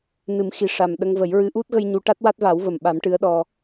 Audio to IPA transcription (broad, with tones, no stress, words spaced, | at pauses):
nɨ˨˩˦mxi˨˩ ʂa˨˩m ɗə˧ŋvə˨˩˦jɹɨ˧˥ ʔu˦˥t̚ɣə˧j ɲu˧˥ ʈa˦˥t̚wa˦˥t̚ va˨˩˦wvə˨˩mɓa˨˩˦m ʈɨ˧˥ə̯ɗɔ˧